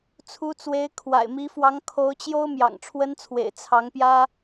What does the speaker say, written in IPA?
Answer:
t͡sʰ u˧˥ t͡s w e˧˥ ɪ̯ kʰ w a̰˨˩ ɪ̯ m i˧˥ f w ɑ˧˥ ŋ kʰ o˧˥ ʊ̯ t͡ɕ j o˥ ʊ̯ m j ɑ̰˨˩ ŋ ʈ͡ʂʰ w ə˥ n t͡sʰ w ḛ˨˩ ɪ̯ t͡sʰ ɑ˧˥ ŋ p j ä˥

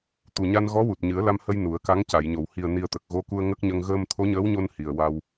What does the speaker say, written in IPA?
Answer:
t̪ u˨˩ ɲ a˧ n ɣ ɔ˧˥ w u˨˩ t̚ ɲ ɨ˨˩˦ ə̯ l a˧ m h ə˧ j n u˨˩˦ ə̯ k a˧˥ ŋ c a˨˩˨ j ɲ o˨˩˨ w h i˨˩ ə̯ n i˨˩ ə̯ t̪ ə˨˩ k̚ ɣ o˧˥ k u˧ ə̯ ŋ ə˦˥ k̚ ɲ ə˧ ŋ ɣ əː˧ m t̪ʰ o˧˥ ɲ əː˧˥ w ɲ o˧ n h i˨˩ ə̯ w a˧ w

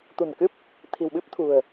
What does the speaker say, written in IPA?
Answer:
t̪ ṳ˨˩ n k ɨ˦˥ p̚ | t̪ʰ i̤˨˩ w ɓ ɨ˦˥ p̚ t̪ʰ ṳ˨˩ ə̯

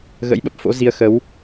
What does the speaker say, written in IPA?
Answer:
ɣ ə̰˧˥ j ɓ ə˦˥ p̚ f o̰˧˥ z i˨˦ ə̯ x ə˨˦ w

